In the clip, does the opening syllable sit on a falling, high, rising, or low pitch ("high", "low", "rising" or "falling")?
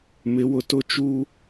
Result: rising